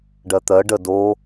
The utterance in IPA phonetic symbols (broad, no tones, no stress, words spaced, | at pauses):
ɖɜt̪ɜ ɖə do